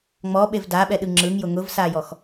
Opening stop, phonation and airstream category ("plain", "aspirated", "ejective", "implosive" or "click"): implosive